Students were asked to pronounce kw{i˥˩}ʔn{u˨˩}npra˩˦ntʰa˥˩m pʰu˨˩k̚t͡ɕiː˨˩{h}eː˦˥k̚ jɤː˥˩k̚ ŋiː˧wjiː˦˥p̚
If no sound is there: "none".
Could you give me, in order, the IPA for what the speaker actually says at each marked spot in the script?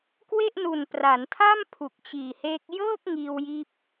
e˥˩, u˨˩, h

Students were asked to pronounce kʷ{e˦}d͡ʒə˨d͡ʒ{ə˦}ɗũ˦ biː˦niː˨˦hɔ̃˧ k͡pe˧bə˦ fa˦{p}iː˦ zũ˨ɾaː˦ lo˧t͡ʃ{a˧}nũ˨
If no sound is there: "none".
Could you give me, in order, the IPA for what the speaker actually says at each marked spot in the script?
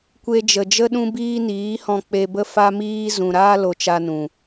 e˧, ə˦, m, a˧

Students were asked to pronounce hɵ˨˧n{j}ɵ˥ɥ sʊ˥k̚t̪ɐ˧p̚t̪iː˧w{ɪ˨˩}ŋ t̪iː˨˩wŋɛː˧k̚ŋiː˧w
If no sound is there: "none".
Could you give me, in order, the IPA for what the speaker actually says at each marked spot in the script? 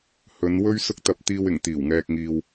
w, ɪ˨˩

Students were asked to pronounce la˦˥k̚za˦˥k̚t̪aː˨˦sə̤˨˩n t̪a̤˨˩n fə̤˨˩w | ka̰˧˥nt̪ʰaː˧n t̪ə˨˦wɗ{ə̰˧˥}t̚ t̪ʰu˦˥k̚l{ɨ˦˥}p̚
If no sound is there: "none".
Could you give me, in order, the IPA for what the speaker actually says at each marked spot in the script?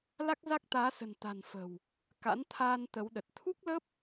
ə˨˩, ə˦˥

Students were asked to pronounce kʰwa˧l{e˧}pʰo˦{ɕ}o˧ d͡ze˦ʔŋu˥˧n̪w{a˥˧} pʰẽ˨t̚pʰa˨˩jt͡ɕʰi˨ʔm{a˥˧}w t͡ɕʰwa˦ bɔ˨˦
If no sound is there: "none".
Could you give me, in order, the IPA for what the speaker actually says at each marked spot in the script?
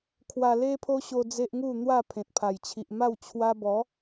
e˦, ɕ, a˥˧, a˥˧

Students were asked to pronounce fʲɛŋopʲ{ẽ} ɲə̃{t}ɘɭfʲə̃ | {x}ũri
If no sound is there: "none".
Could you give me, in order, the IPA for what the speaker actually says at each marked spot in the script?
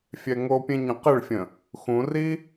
ẽ, q, x

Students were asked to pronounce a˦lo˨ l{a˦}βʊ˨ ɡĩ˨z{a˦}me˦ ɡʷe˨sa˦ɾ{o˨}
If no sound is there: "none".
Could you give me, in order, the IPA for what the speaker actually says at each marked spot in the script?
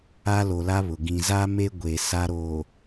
a˦, a˦, oː˨

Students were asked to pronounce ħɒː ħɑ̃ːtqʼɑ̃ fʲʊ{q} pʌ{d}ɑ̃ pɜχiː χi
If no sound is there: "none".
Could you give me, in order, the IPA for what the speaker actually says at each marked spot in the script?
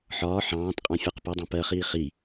q, dˤ

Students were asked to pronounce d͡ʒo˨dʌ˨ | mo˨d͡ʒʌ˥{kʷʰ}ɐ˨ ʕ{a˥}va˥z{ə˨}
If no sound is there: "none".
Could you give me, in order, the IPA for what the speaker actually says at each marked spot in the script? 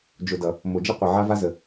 qʷ, a˥, ə˨

